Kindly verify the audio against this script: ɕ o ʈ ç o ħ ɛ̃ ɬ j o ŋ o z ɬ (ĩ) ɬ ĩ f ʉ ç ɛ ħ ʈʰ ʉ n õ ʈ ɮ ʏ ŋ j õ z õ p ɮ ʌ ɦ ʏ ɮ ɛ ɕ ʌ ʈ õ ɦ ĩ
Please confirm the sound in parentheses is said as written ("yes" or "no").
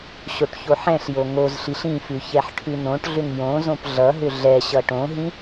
no